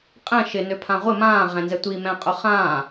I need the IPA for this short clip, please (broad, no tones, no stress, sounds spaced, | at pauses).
qʼ ɛ̃ ʃ ɪ n ø pʰ ã ʁʷ ɪ m ãː ʁ ɛ̃ n z ɛ tʷ i m ɛ̃ qʼ ʊ χ ãː